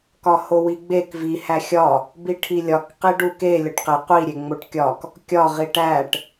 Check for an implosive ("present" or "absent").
absent